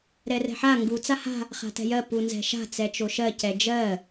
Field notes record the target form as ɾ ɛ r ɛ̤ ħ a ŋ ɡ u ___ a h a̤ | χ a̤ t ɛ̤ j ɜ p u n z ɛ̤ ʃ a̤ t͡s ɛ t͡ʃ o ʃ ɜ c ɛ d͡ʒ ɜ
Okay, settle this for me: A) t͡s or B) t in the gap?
A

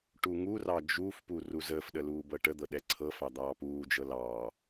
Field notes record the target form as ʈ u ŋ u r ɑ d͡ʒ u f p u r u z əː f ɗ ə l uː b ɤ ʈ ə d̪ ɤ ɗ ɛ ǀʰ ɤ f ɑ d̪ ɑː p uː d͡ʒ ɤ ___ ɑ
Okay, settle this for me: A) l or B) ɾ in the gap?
A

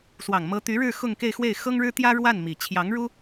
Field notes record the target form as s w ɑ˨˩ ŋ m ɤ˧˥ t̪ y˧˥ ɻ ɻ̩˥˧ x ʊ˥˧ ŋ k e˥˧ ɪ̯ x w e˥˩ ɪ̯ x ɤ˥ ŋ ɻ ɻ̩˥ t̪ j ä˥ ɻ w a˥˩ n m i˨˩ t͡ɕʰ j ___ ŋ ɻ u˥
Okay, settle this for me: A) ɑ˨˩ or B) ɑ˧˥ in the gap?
B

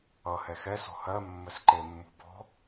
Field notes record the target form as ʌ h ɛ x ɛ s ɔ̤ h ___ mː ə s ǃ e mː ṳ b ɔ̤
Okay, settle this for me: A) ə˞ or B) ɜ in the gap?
B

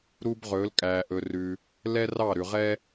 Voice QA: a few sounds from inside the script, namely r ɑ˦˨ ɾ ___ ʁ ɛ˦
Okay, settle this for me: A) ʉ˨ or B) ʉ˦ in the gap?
A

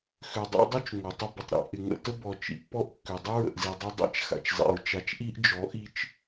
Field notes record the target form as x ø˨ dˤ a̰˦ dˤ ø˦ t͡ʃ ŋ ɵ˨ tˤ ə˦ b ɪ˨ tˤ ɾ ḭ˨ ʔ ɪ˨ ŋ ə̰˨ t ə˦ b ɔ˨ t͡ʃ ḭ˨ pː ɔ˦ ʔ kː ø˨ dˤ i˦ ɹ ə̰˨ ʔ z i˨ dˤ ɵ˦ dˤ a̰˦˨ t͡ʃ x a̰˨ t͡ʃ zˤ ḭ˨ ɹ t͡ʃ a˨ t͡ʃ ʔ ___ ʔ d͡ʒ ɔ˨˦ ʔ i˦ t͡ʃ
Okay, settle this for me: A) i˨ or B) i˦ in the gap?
B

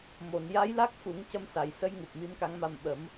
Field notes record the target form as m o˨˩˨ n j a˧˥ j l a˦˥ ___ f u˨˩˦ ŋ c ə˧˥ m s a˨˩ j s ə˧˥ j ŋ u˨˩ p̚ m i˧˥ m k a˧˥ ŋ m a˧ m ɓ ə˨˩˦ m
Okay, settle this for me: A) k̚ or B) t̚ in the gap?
A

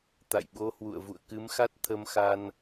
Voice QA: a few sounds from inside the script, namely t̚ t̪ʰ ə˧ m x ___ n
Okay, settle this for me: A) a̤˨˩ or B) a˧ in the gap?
B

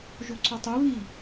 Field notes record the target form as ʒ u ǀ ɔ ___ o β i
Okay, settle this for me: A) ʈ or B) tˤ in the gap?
B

